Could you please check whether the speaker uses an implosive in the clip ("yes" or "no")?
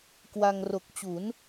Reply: no